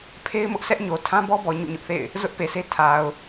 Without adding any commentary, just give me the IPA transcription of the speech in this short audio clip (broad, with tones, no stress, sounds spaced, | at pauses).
pʰ e˦ ɪ̯ m ʊ˦ ʔ s ɛ˦ ʔ ɲ o˨ tʰ ã˦ b ɔ˦ b ɔ˨ ɲ ṵ˦˨ ɲ ʊ˦ ʔ θ ḛ˦˨ ɪ̯ | z ʊ˦ ʔ p e˨ sʰ e˦ tʰ a˨ ʊ̯